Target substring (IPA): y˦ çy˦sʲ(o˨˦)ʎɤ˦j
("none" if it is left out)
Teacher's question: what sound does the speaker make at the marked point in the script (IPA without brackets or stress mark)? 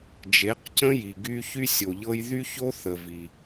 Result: o˨